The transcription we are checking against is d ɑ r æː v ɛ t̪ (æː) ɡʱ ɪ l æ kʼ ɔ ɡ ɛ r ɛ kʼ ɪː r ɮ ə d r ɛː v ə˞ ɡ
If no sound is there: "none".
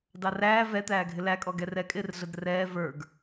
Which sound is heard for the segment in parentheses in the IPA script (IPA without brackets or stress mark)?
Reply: æː